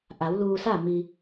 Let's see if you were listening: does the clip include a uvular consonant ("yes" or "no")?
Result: no